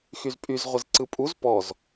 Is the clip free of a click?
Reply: no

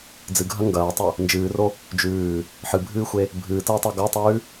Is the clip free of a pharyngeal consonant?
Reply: no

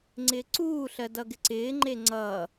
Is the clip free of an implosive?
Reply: yes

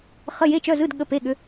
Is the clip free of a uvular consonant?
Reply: no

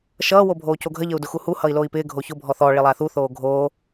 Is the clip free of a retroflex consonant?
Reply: no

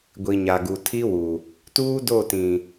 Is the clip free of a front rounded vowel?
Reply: yes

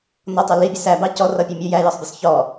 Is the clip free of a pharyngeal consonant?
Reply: yes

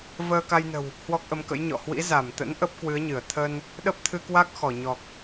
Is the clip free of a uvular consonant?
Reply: yes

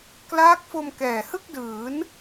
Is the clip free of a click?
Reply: yes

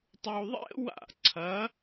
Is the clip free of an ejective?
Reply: yes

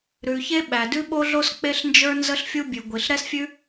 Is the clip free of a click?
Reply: yes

